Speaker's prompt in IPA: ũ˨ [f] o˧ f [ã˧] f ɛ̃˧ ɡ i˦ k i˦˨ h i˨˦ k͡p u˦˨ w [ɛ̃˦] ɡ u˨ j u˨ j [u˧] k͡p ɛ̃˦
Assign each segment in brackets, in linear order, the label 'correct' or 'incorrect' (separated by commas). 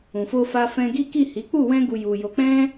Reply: correct, incorrect, incorrect, incorrect